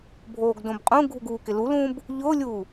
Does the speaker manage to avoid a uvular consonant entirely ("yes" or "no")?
no